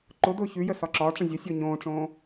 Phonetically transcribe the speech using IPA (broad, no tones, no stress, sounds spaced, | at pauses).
ǃ ʊ d ʊː ç ʉ j ə s ɒ ǁ ɒː ʈ͡ʂ ə̃ zʲ ʊ sʲ ʊː ɲ õː ʈ͡ʂ õː